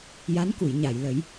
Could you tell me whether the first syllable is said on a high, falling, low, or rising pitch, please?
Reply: rising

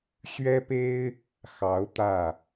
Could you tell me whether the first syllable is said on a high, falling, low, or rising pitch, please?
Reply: high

